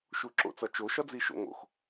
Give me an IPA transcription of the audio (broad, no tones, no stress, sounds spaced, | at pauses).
ʃ u ǁ o̰ t͡s ɒ t͡ʃ o ʃ ɒ d͡z i ʃ o̰ ŋ o̰ x